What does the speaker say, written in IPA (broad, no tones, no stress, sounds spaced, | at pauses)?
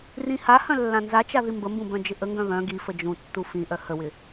r ĩ h a h œ̃ lː ã n z a t͡ʃ a ð i m b ə m b ũ b œ̃ d͡ʒ ɪ ʔ ə ŋ ɡ œ̃ β œ̃ ɡ i f ə d͡ʒ ũ tː u f ĩ ʔ œ h ə w ɪ